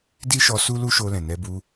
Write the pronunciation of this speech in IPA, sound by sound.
di˦ʃɔ˧ su˦lu˦ʃo˧ lɛ̃˨nɛ˧bu˧

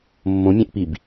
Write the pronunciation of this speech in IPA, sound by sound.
mːõmʲɛ̃ʔpib

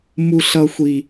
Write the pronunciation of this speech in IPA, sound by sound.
mu˦ɬʌ˦xʷi˦

